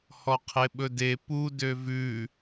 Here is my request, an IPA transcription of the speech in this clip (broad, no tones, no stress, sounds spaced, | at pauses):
h ɔ qʰ e ɓ ɵ d e p u d ø v ʉ